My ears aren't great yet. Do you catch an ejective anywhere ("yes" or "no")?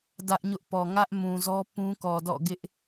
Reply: no